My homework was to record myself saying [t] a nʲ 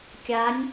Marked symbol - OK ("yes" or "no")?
no